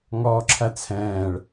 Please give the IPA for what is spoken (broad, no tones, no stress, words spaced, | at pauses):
ŋɔːǁʰæt͡sʰɛ̃ːɭ